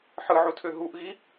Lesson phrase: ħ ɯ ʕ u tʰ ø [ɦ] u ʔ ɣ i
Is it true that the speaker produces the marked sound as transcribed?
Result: yes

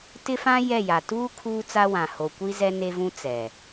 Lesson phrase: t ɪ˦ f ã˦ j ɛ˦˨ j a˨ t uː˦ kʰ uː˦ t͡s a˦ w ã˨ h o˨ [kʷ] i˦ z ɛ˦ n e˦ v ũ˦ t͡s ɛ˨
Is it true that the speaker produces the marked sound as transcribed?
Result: yes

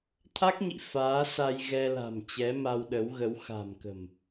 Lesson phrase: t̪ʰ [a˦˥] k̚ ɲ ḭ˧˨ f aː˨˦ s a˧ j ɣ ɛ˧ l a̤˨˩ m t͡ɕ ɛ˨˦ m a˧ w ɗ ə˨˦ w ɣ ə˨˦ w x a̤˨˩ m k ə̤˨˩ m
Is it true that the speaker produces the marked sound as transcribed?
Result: yes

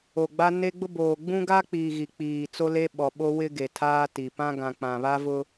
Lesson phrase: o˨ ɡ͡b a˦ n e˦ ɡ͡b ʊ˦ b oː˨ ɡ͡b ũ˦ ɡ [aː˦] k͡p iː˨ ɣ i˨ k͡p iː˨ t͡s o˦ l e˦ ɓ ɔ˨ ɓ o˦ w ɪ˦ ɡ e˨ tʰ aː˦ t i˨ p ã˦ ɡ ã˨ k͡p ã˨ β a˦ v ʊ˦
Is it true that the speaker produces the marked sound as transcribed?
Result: no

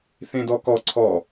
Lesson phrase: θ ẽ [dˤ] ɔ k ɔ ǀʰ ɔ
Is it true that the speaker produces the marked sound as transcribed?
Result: no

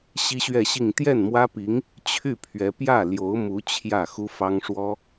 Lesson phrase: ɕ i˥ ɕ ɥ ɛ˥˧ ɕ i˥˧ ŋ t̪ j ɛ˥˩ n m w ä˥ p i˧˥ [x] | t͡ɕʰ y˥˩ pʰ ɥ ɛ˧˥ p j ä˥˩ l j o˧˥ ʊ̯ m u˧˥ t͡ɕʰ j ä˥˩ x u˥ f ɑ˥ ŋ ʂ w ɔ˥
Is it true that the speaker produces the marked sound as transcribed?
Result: no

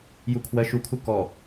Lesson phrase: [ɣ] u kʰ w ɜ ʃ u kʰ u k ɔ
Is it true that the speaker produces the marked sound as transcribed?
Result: no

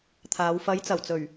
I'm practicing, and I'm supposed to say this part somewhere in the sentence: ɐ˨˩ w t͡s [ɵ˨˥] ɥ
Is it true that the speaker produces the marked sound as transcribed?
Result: no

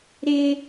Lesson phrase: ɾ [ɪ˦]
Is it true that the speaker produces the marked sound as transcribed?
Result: yes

